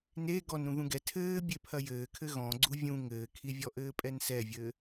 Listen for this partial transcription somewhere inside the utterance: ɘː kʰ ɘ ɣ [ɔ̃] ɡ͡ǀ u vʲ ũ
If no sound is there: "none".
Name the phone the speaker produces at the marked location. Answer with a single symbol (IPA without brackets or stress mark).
ɔ̃